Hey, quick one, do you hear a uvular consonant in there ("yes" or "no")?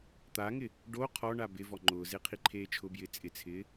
yes